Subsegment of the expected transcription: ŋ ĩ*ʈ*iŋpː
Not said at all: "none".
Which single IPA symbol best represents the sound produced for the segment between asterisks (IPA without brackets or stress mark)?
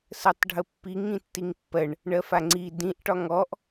tː